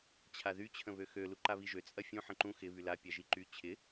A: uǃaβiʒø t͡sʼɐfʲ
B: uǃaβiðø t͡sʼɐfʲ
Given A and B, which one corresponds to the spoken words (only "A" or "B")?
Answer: A